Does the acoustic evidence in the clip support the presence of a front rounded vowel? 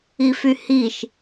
yes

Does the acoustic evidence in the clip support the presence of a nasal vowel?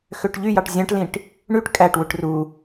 yes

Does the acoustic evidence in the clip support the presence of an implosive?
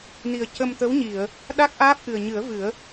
yes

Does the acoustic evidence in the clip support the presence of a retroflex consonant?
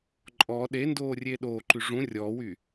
yes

